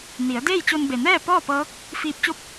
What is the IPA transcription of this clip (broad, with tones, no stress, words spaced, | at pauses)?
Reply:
ni˩˧ə̯deː˥˨jt͡ɕo˧n be˩nɛː˥˨ pɔː˥˨pɤː˧˥k̚ | fiː˧p̚t͡ɕo˥˨p̚